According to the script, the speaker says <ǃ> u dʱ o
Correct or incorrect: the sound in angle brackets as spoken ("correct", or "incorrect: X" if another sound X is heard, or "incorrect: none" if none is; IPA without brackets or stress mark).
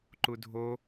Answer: correct